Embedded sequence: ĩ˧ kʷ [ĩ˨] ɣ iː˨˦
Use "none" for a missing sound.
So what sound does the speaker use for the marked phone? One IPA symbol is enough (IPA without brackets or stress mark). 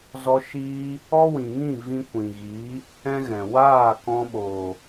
ĩ˨